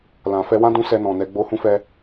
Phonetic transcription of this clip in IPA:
l ã˨ f ɛ˧ w ã˦ d ũ˦ s ɛ˧ n ɔ̃˨ n ɛ˨ ɡ͡b o˧ h ũ˦ f ɛ˧

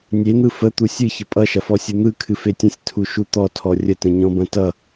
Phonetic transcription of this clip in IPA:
nʲ e n̪ ɯ f ə t̪ u sʲ ɨ ç ə pʼ ʌ ʃ ɐ f ɔ sʲ ɯ n̪ ɯ kʰ ɨ f e tʲ ə̃ sʲ tʰ u ʃ u t̪ ɔ tʰ ɔ rʲ ə t ə̃ ɲ ɔ̃ b ɐ̃ t ʌ

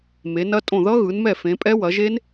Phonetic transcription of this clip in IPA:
m e˨˦ n ɐ˦˥ tʼ õ˦˨ ð ʌ˦˥ ɣ ɯ˨˦ n m ɛ˦˨ f ẽ˨˦ pʼ ɛ˦˥ w ɐ˨˦ ʒ e˦˥ n

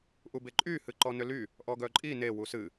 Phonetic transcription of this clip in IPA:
ʔ u b e ǃʼ y h ɨ ǃ ɔ n ʏ l y | ʔ ɔ ɡ œ ǃʼ i n e w u s ɨ

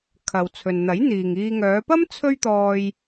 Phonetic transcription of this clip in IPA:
kʰ ɐ˨ w t͡sʰ ɵ˨ n n̪ ɐ˨˥ j n̪ iː˨ ŋ iː˧ ŋ œː˨˧ p ɐ˥ m t͡sʰ ɵ˥ ɥ t̪ ɔː˧ j

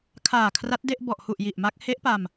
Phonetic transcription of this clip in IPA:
kʰ aː˨˩ kʰ r a˦˥ t̚ d e˥˩ ʔ b ɔ˨˩ ʔ h u˨˩ ʔ j i˨˩ ʔ m a˦˥ k̚ h e˦˥ ʔ p a˧ m

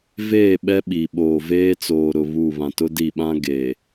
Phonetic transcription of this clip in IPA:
v eː˦˨ ɓ ɛ˦ ɓ i˨ ɓ oː˨ v eː˦ t͡s oː˨ ɾ ʊ˨ β u˦˨ β ã˨ t ʊ˦ d i˦˨ ɓ ã˦ ɡ e˨

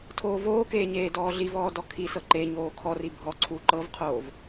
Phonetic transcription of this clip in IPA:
tʰ oː v oː k eː ɲ eː d ɔː ɮ i v ɔː d ɔ kʰ i s ɤ ǃ e ɲ oː kʰ ɔ r i bʱ ɔ ǀʰ u ǃ ɤ v qʰ oː v

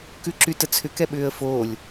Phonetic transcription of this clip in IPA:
k ʉ ǁ y t ə t͡sʰ ʏ k ɛ ɓ ʏː ə̯ f oː lʲ

